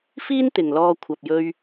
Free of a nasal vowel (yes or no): yes